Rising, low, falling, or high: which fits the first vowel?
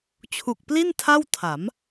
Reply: low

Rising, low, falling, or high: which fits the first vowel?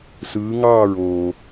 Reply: rising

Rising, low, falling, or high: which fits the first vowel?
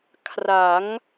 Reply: rising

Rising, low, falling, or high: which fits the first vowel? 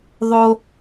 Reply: high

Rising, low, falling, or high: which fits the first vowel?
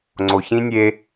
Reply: low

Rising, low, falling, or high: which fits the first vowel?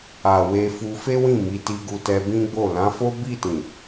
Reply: low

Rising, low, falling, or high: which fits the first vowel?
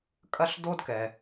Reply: high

